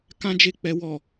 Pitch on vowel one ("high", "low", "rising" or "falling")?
high